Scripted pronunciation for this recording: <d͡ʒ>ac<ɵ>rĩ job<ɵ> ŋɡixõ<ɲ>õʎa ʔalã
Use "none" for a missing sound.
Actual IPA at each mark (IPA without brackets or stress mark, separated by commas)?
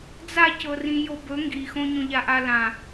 d͡z, ɤ, ɵ, ɲ